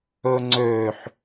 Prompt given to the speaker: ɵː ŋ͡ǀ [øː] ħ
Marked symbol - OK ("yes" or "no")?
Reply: yes